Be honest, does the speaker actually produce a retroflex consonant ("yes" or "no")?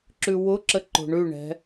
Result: yes